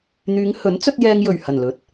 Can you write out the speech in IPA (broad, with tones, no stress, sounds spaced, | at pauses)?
n̪ yː˨˧ ŋ h ɵ˨˥ n t͡s ɵ˧ t̚ j ɛː˧ ŋ j ɵ˨˩ ɥ h ɐ˨˩ n l ɵ˨˥ t̚